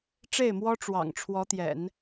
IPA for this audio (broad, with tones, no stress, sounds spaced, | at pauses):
ʈ͡ʂ e˥˩ ɪ̯ m w ɔ˥ ʈ͡ʂ w ɑ̰˨˩ ŋ ʈ͡ʂʰ w ɔ˧˥ t̪ j ɛ̰˨˩˦ n